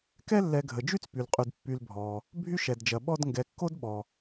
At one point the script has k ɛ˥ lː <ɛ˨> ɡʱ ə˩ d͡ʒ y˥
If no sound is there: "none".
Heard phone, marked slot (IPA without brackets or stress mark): ɛ˨